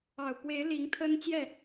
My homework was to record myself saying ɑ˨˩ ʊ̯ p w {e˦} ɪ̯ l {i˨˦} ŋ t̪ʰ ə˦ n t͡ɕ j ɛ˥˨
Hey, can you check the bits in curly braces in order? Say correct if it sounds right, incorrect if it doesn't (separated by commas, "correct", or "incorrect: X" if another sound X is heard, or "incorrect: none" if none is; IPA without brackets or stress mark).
incorrect: e˨˦, correct